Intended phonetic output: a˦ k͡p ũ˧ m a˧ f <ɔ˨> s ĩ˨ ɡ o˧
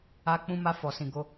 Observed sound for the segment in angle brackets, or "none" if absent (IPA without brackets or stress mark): ɔ˨